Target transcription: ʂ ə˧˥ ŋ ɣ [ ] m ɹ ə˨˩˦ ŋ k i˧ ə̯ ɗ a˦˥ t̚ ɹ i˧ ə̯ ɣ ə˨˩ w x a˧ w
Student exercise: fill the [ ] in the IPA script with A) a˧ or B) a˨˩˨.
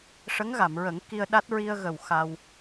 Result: B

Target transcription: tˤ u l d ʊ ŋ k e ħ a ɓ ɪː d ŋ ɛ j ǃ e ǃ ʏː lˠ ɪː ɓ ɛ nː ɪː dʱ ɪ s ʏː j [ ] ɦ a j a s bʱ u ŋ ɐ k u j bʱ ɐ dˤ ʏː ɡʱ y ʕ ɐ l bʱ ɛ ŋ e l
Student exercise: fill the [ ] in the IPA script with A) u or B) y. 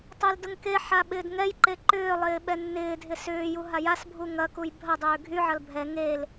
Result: A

